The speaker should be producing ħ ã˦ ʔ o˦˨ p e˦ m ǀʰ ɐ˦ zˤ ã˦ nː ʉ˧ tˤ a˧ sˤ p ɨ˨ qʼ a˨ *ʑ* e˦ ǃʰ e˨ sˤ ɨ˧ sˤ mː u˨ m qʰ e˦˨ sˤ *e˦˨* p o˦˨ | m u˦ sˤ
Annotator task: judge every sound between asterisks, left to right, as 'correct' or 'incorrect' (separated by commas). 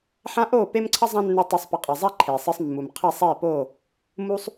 incorrect, correct